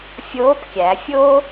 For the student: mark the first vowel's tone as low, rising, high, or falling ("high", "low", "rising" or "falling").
rising